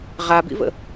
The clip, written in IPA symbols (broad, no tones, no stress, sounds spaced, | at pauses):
ʁ a b ḭ v ə̰